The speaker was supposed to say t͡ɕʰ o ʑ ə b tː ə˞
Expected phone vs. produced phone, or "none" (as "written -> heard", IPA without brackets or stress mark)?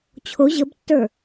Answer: none